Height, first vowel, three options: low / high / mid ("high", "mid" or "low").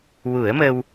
high